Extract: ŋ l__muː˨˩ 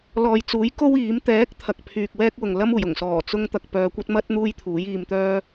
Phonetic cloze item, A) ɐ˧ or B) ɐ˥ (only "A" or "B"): B